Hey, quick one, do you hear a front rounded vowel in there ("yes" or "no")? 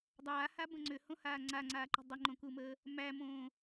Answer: yes